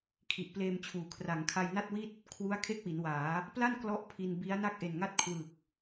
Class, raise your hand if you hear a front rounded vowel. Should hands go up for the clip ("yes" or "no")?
no